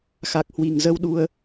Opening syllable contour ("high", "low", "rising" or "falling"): low